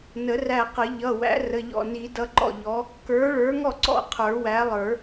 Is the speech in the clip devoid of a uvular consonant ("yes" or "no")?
no